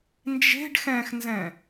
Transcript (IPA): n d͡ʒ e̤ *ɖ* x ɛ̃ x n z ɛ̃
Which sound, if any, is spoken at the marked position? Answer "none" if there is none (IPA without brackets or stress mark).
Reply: ɖ